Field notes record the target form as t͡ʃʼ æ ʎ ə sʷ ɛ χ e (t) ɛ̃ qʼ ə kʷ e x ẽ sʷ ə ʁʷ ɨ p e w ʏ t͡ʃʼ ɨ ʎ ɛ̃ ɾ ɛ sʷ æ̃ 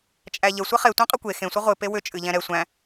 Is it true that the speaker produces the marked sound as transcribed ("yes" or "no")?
no